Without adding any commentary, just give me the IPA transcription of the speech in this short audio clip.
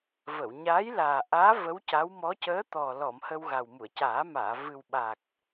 v ə˨˩˨ w ɲ aː˧˥ j l aː˨˩ ʔ aː˧˥ v ə˧˥ w c a˧˥ w m ɔ˧˥ c əː˧˥ t̪ ɔ˨˩ l ɔ˨˩˨ m h ə˧ w ɣ a˨˩ w m u˨˩˨ ə̯ c aː˨˩˦ m aː˨˩˨ v ɨ˨˩ w ɓ a˨˩ k̚

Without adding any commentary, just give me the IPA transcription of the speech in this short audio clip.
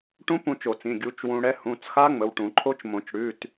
ʈ ũ˦˥ p ũ˧ t͡ʃ o˨˩˦ t͡s ĩ˩˧˩ ɡʲ u˩˥ t͡ʃ w ũ˧ ɽ ɛ˦˥ h ũ˩˧˩ t͡s x a˦˥ ŋ͡m ə˩˧˩ w ʈ ũ˨˩˦ ǃʰ o˦˥ t͡ʃ m õ˨˩˦ t͡ʃ ɽ ʉ˩˧˩ t

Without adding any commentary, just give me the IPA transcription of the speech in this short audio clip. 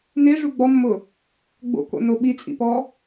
n e ʐ u ɡ͡b ɔ mː ʊ | ɡ͡b o̰ k o̰ n o ɓ i t͡sʼ ḭ p ɔ

